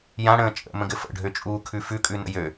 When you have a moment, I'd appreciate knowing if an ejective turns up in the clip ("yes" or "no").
yes